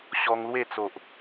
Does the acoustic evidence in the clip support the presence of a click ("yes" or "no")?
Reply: no